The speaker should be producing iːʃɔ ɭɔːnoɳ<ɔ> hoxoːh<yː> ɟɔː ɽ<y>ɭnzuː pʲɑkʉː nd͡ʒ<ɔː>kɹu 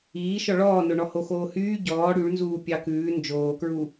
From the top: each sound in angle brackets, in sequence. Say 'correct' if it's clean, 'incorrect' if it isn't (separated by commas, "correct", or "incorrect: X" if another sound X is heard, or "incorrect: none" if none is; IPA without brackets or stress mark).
correct, correct, correct, incorrect: oː